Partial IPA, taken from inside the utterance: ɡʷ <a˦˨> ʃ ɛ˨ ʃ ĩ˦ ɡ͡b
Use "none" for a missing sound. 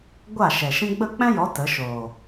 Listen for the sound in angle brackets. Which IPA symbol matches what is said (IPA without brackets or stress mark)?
a˦˨